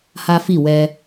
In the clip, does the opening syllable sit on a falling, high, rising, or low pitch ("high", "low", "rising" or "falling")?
high